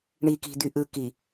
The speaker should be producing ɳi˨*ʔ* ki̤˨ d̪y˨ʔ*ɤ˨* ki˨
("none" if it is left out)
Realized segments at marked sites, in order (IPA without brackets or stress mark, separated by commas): none, ɯ˨